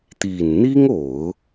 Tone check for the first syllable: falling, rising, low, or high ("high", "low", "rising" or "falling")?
low